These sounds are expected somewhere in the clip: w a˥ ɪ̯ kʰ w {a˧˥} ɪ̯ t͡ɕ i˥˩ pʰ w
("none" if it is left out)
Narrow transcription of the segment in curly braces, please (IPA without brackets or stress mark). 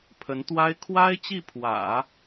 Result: a˥